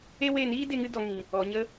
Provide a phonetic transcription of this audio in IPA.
e˦ w e˦˨ n iː˦ d e˧ ŋ ɨ˧ d ɔ˨ ŋ ĩ˨ | ɔ˨ ɲ ə˧

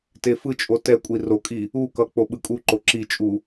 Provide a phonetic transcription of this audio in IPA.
t e f ɯ t͡ʃʼ o t ɛ kʷʼ i r o kʼ i | u k ʌ k͡p o ɓ ɯ kʼ u ǃ o ǁ i t͡ʃʼ u

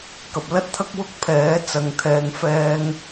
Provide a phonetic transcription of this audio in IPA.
k ɐ˨ p̚ l ɐ˥ t̚ t̪ʰ ɐ˥ k̚ w ʊ˥ k̚ pʰ ɛː˨˥ t͡s ɐ˨˧ ŋ t̪ʰ ɛː˨ ŋ f ɛː˧ ŋ

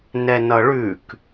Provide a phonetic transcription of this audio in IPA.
n ɛ n ʌ ɭ ʉ k

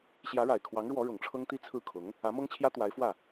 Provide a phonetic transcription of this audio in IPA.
ɕ j ä˧˥ ɻ a˨˩ ɪ̯ kʰ w ɑ˧˥ ŋ ɻ w ɔ˧˥ ɻ ʊ˨˩ ŋ ʈ͡ʂʰ ɤ˥ ŋ t̪ i˥˧ t͡sʰ ɹ̩˥˩ kʰ ʊ˧˥ ŋ | ä˧˥ m ɤ˥ ŋ t͡ɕʰ j ä˥ t̪ w a˧˥ ɪ̯ f w ä˥˩

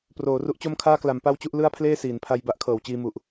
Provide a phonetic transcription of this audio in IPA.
p r oː˩˦ r u˦˥ ʔ t͡ɕ o˥˩ m kʰ aː˥˩ k l a˩˦ m p a˥˩ w t͡ɕ u˥˩ ʔ l ɯ˥˩ a̯ pʰ l eː˥˩ s iː˩˦ n pʰ a˧ j b a˦˥ ʔ kʰ ɤː˩˦ w t͡ɕ iː˧ m u˨˩ ʔ

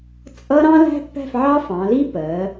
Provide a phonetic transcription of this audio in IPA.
t͡sʼ ʌ˥ ɾ ɑ̃˥ l æ̤˥ pː æ̤˥˧ f ʕ ɑ˥ f ɑ̃˩˧ l i˥ p ɜ˩˧

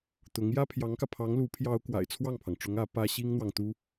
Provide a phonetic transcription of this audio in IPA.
t̪ ʊ˧˥ ŋ j ä˥ pʰ j ɑ˧˥ ŋ k ä˧ pʰ ɑ˧˥ ŋ l u˧˥ pʰ j ɑ˧˥ ʊ̯ k w a̰˨˩ ɪ̯ t͡sʰ w ɑ˥˩ ŋ pʰ ɑ˩ ŋ ʈ͡ʂ ʊ˧˥ ŋ ä˧˥ p ä˥ ɕ i˥ ŋ n̪ w ɑ˨ ŋ t̪ u˥

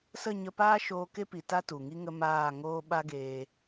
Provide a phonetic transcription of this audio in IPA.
s ə˦˨ ɲ ə˧ p aː˦ ʃ oː˧ k e˦ p i˨ t a˦ t u˨ ŋ i˦ ŋ ə˦ m aː˦˨ ŋ oː˦ ɓ a˦ ɡ eː˧

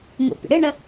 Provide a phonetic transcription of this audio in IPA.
ŋ ṵ pʲ ə̰ ɽ ɨ ɳ ə

